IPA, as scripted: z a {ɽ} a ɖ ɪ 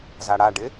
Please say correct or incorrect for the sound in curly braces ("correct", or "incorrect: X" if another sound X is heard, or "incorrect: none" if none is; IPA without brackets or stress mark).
correct